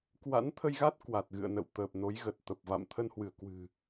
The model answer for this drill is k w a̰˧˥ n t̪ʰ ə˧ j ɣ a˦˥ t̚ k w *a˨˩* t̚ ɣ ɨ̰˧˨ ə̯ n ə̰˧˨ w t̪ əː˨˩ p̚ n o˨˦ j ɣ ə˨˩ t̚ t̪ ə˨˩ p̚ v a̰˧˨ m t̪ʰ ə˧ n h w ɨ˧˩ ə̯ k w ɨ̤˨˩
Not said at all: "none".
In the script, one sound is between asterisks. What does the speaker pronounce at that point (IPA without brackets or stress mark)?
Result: a˨˩